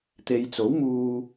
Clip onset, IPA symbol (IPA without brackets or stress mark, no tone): t̪